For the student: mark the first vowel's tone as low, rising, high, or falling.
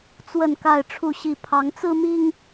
falling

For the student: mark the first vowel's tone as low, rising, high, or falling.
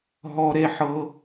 high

